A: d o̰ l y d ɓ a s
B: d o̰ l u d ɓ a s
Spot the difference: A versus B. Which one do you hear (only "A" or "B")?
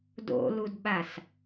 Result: B